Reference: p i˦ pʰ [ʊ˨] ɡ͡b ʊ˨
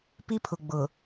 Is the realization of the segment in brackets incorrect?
no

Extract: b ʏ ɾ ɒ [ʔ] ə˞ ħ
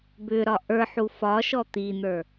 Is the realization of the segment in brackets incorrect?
no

